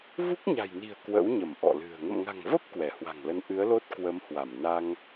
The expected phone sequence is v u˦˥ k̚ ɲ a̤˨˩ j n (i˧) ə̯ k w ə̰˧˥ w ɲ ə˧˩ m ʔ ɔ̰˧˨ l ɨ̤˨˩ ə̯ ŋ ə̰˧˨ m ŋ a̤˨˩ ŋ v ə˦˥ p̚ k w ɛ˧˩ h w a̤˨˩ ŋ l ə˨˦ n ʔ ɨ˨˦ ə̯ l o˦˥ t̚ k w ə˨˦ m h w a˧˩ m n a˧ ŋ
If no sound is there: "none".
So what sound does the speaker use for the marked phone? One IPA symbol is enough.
i̤˨˩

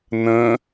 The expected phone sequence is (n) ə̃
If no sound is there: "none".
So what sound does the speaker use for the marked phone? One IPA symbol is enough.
n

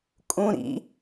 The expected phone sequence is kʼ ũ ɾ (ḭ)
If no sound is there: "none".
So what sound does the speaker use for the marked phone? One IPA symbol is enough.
ḭ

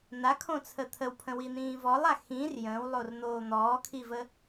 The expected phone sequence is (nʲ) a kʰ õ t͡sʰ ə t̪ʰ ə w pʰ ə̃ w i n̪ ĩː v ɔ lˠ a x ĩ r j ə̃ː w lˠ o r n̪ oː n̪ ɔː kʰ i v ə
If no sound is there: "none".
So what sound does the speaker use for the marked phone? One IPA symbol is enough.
n̪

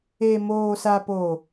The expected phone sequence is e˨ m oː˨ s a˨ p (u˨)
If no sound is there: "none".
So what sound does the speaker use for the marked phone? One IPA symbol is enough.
o˨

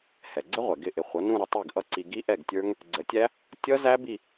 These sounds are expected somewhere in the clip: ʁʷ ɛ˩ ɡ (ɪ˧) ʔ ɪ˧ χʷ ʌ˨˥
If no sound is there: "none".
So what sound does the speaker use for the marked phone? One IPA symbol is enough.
ɪ˥˩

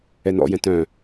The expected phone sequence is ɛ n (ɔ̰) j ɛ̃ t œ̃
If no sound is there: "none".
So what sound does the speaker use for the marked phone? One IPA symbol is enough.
ɔ̰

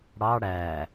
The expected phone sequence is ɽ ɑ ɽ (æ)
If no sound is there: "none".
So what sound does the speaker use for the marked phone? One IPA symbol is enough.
æ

